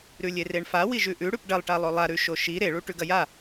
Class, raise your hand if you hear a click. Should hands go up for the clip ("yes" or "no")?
no